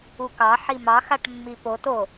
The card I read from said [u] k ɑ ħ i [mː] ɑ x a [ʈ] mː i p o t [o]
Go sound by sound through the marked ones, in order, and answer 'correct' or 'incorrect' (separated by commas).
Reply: correct, incorrect, correct, correct